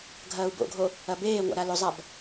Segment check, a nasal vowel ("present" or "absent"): absent